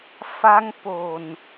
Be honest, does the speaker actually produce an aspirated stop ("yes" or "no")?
no